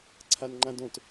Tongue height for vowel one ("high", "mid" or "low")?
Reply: low